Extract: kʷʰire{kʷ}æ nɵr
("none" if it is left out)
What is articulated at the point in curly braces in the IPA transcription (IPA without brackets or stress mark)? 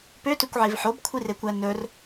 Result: kʷ